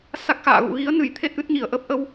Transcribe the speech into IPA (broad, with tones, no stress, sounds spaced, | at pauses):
s a˦˥ k̚ x a̰ː˧˨ ɣ ṵ˧˨ ɣ i˨˦ ə̯ n ɨ˧˩ j t̪ʰ e˦˥ t̚ ʔ ɨ˦˥ t̚ ɲ i˧˩ ə̯ ʔ ə˦˥ p̚ ʔ ə˧ w